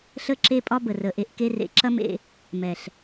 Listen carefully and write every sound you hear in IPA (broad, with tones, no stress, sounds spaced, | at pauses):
ɬ ə˦ ǁ e˦ pʼ ɒ˦ b ə˨ r ə˨ ʔ e˧ ʔ k e˧ r ḛ˨˦ ǁ ɐ˦ m ḛ˧ | m ɛ˨ ɬ